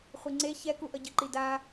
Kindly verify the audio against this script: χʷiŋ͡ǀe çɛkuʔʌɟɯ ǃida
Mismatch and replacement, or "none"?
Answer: none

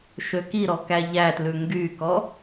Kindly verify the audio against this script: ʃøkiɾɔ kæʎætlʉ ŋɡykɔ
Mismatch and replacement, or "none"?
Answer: none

